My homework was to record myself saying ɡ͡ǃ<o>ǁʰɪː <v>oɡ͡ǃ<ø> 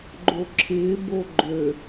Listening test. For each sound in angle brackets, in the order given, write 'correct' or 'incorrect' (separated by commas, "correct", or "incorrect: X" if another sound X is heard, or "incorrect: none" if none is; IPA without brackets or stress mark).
correct, incorrect: b, correct